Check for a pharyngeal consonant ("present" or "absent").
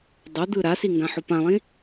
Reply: present